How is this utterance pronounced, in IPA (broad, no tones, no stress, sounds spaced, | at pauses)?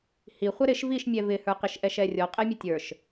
h i χʷ ɛ ɾ ɪ ʃ v i ʃ mʲ ɛ v ɪ h ə˞ q ɪ ʃ ʔ ɛ ʃ ɛ rʲ ɔ qʼ ɛ mʲ ə tʲ ə˞ ʃ